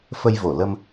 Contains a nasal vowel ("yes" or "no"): no